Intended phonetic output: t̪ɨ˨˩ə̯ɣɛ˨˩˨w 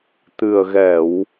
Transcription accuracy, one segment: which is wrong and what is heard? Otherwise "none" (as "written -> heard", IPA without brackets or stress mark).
none